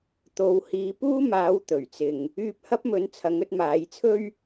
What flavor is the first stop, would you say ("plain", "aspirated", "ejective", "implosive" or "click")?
plain